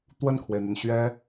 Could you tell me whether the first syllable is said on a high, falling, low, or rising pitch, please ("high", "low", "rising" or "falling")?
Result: falling